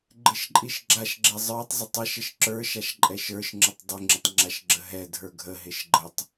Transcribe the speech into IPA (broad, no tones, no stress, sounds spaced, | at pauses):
ɡ͡ǃ ɪ ʃ ǃʼ i ʃ ɡ͡ǁ a ʃ ɡ͡ǁ ɛ zˤ ə˞ tˤ zˤ ɪ tˤ ɛ ʃ ə ʃ ǁ ə˞ ʃ a ʃ ǃʼ ɛ ʃ ə˞ ʃ ŋ͡ǁ ə tˤ dˤ ɪ ŋ͡ǁ ɪ tˤ ŋ͡ǁ a ʃ ɡ͡ǁ ə ɦ ɛ dʱ ə˞ ɡʱ ə ɦ ɪ ʃ ɡ͡ǃ ə tˤ